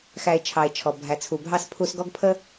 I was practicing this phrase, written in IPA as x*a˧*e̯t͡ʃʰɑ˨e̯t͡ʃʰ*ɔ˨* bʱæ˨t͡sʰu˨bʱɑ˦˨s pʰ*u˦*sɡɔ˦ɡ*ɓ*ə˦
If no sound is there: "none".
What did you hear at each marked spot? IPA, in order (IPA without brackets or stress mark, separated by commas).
æ˧, ɔ˨, u˧, pʰ